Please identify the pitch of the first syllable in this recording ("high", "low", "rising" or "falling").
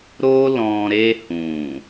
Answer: high